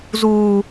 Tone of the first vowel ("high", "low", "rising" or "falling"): low